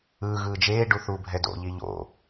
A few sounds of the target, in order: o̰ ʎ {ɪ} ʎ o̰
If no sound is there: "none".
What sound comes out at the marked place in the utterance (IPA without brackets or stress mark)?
i